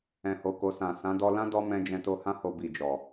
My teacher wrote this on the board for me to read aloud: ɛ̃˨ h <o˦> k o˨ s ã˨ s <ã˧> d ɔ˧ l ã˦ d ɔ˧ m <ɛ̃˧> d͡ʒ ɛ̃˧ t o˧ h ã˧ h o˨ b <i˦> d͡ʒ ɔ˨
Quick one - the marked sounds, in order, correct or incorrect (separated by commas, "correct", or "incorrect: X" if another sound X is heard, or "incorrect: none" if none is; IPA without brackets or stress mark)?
incorrect: o˨, incorrect: ã˨˦, correct, incorrect: i˨